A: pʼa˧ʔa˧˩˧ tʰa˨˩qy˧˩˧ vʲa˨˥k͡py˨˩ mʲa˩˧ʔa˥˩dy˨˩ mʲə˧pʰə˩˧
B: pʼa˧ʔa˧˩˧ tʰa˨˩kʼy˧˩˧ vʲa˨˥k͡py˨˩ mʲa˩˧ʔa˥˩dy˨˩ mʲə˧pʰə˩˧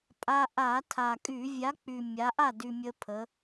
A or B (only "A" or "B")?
B